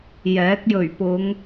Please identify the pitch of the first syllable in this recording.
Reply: rising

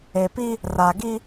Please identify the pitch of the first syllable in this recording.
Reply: low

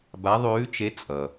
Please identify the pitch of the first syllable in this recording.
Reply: rising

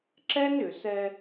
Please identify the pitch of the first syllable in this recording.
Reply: high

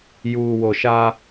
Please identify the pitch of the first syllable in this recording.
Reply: low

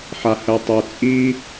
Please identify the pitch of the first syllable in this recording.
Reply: low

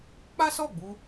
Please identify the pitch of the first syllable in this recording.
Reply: high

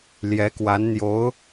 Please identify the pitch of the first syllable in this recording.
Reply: rising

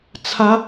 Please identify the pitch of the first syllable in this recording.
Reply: rising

